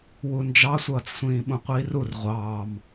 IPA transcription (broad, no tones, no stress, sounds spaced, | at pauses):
w u n d͡ʒ ɑ sʷ ʌː t͡s sʷ ĩː ɓ ũ qʷ iː r u r ʁʷ ɑː m